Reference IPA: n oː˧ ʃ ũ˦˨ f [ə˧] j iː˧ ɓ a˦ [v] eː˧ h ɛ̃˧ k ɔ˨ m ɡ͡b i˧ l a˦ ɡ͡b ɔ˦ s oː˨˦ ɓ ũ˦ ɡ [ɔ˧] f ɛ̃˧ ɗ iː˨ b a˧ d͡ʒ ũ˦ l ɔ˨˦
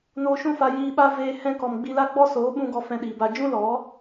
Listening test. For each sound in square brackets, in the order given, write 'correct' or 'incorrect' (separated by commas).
incorrect, correct, correct